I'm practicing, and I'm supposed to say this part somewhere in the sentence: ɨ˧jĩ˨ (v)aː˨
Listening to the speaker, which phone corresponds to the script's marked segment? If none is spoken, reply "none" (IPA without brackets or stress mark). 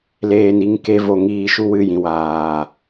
w